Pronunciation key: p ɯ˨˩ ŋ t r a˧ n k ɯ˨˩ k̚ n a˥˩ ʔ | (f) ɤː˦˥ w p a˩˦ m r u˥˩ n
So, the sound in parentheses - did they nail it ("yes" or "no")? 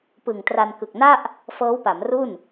yes